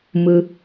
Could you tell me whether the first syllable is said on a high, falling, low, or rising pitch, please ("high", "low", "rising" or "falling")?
low